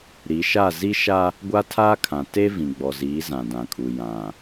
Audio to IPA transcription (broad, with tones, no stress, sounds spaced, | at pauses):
ɾ i˨˦ ʃ a˦˨ z i˦ ʃ a˦ | ɡʷ a˦ tʰ aː˦ kʰ ã˨ t e˦ v ĩ˨ ɡ͡b ɔ˨ z iː˨˦ z ã˨ d ã˨ kʼ u˨ j ã˨